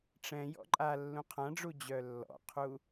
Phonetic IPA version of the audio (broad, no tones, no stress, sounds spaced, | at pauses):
ʈ͡ʂ ɛ̃ j ɔ̰ ǃʼ a lː ũ qʰ ã ɖ͡ʐ u d͡ʑ œ lː ɔ̰ qʰ u